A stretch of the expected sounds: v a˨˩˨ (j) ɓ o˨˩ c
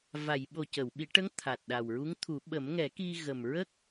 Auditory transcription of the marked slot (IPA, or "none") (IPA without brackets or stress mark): j